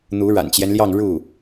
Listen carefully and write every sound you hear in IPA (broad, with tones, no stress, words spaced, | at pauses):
n̪u˧˥ɻa̰˨˩nt͡ɕjɛ˦nljɑ˥˧ŋ ɻu˥˩